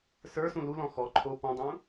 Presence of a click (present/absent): present